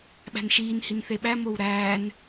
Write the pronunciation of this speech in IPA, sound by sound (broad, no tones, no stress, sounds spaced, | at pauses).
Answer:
ɓ æ̤ n ʃ iː n h i n θ e ɓ æ m o w ɾ æː n